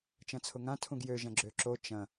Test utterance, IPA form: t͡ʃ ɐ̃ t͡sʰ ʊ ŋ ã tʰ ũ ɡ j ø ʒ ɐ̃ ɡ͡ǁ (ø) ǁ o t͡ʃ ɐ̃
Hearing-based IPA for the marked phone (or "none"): ø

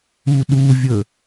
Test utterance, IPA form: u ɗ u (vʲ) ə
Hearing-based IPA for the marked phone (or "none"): vʲ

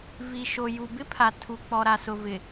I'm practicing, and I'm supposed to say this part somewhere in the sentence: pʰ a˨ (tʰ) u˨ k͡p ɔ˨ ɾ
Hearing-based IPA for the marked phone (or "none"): tʰ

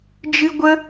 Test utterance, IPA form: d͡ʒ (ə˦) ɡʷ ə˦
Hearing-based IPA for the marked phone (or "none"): ɨ˦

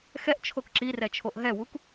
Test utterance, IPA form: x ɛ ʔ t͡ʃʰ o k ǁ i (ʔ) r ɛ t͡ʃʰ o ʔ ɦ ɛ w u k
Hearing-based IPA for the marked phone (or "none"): none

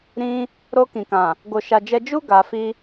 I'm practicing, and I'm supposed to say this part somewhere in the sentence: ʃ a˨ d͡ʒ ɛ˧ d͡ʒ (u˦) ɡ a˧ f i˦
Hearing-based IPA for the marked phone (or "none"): u˦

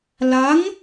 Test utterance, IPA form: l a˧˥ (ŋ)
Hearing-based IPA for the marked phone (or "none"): ŋ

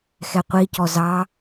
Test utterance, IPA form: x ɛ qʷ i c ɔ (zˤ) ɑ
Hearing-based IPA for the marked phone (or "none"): z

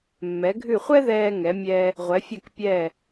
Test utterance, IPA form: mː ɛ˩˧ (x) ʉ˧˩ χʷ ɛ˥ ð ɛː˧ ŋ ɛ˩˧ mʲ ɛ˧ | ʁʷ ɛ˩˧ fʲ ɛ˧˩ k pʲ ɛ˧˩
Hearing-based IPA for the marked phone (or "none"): ɡʱ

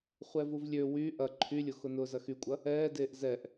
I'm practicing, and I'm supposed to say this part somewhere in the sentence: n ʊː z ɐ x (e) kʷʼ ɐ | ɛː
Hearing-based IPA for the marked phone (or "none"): y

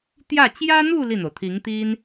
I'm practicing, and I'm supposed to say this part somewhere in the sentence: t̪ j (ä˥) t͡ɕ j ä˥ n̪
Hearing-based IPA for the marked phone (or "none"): ä˥˩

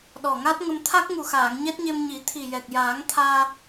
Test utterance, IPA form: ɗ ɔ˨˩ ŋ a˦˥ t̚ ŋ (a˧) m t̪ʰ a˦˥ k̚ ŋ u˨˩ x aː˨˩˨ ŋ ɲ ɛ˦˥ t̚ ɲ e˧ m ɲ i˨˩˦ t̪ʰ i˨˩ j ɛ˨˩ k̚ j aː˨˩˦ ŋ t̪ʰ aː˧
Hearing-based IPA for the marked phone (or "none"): ə˧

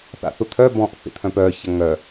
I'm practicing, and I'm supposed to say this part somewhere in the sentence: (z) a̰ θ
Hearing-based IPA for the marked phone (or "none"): θ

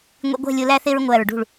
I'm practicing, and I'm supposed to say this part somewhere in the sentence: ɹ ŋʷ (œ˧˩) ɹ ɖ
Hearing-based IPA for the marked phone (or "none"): æ˧˩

